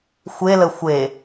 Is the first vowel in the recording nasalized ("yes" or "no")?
no